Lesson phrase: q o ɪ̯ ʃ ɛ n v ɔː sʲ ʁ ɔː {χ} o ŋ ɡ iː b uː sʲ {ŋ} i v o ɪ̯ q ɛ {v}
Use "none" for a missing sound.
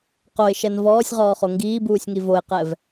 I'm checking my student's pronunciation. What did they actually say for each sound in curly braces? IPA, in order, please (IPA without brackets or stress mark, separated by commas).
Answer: χ, ŋ, v